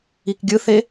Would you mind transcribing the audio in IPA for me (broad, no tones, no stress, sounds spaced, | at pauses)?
i k ɡʲ ɯ θ e